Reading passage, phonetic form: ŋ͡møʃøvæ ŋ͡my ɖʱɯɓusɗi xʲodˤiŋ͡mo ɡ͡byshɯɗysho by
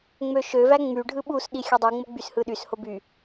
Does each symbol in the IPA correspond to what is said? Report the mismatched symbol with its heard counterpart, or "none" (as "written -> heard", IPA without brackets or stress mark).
none